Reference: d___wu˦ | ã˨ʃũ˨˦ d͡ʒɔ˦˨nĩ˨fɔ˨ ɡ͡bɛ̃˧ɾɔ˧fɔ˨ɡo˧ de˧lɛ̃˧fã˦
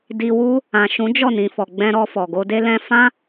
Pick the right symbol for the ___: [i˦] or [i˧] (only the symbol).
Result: i˧